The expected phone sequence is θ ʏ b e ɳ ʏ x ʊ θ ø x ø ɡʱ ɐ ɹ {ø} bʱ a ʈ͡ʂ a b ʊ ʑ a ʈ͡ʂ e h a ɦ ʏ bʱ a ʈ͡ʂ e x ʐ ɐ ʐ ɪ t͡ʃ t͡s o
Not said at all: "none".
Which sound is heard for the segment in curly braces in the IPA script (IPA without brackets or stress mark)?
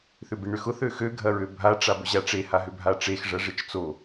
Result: ø